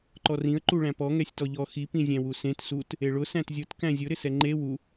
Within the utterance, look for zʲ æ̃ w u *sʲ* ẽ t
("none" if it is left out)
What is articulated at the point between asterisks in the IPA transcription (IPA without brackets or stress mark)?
s